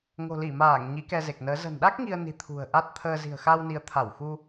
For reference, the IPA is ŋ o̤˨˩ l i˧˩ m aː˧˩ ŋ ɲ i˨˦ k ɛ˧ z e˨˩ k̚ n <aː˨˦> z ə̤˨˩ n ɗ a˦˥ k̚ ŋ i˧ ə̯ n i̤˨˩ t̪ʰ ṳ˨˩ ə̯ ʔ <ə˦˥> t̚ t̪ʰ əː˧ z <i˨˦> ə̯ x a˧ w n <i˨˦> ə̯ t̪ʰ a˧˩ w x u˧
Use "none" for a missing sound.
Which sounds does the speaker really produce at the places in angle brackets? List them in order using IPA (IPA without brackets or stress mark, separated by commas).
əː˨˦, a˦˥, i̤˨˩, i˨˦